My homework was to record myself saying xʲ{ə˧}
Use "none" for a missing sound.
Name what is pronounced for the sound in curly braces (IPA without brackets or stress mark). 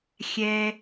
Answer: ɛ˧